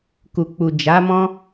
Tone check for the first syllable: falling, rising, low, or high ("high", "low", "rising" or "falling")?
low